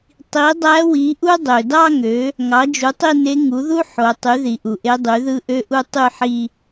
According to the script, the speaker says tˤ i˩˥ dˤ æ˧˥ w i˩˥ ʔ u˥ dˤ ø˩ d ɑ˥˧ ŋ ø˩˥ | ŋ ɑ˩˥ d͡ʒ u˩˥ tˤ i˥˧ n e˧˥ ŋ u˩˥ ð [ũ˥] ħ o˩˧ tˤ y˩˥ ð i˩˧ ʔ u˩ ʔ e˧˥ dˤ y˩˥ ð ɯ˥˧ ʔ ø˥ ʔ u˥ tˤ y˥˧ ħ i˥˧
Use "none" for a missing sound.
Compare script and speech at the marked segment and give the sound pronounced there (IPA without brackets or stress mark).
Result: u˥